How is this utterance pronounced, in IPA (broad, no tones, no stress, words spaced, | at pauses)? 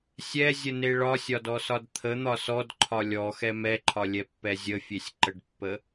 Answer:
sʲɛzʲəne ɭɒsʲɒdɔsɒd t̪ʰən̪ɒ sɔdǃʰɒ lʲɔxɛ mɛǃʰɒlʲɛpːɛ zʲəfʲesʲǃəɖpːə